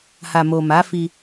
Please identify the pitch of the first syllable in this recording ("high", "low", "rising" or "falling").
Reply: low